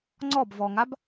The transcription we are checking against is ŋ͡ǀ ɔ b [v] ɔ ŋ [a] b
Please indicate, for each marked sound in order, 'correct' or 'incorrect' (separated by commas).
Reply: correct, correct